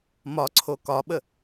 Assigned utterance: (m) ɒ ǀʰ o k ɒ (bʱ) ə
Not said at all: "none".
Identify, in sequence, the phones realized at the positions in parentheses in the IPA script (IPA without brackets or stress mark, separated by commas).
m, ɓ